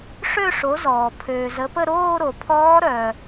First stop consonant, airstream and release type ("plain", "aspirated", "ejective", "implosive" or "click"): aspirated